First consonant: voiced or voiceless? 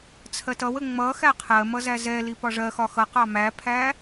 voiceless